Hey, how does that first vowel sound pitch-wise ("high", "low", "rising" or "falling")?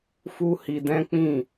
high